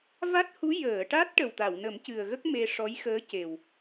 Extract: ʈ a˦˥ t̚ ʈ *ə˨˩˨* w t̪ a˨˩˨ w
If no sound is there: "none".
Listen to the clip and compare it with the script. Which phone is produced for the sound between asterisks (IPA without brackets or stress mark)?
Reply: ə˨˩